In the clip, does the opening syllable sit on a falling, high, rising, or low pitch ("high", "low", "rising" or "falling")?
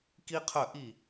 high